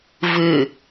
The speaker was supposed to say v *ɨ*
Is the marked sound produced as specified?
yes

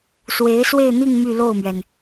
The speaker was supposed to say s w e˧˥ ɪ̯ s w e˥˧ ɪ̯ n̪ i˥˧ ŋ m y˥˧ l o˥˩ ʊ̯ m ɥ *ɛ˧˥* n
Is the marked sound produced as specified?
no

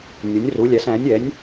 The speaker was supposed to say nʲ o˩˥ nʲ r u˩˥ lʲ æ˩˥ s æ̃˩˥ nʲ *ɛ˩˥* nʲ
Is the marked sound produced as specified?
yes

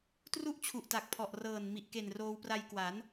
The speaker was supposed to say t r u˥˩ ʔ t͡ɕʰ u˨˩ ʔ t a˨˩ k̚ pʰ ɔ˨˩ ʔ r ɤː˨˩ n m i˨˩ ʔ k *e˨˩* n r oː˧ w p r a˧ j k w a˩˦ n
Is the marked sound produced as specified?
yes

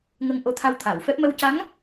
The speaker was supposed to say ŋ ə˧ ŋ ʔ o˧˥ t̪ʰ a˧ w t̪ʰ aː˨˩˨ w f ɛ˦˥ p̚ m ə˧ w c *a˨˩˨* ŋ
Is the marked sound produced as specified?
no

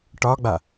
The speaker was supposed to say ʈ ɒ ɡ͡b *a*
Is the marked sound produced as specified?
yes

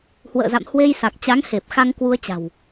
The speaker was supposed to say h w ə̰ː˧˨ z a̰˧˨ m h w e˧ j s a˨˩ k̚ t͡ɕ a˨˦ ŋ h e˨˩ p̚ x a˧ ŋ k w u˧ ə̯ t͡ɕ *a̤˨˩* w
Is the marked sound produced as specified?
yes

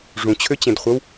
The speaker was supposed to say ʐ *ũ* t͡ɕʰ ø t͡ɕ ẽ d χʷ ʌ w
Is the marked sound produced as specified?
yes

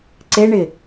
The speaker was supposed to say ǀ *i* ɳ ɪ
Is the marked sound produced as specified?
no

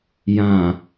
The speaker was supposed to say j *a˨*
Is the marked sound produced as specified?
no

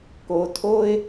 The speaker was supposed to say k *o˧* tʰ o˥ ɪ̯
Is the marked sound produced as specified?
yes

